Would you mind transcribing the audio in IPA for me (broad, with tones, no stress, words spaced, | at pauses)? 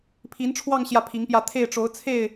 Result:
pʰi˧˥nʈ͡ʂʰwɑ˥˧ŋ ɕjä˥˩pʰi˧˥ŋpjä˥˧ t̪ʰe˥˩ɪ̯ʈ͡ʂo˧˥ʊ̯t͡sʰe˥˩ɪ̯